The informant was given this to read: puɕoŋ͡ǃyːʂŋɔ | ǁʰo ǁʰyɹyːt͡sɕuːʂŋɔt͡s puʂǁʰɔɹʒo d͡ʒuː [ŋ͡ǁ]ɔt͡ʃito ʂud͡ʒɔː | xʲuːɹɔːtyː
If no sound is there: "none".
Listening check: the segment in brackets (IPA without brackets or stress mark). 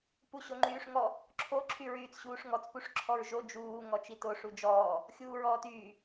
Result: ŋ